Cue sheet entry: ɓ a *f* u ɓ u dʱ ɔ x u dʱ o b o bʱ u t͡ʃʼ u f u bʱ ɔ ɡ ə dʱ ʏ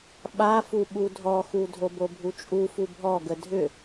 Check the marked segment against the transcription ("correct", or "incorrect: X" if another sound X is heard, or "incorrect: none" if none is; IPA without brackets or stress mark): correct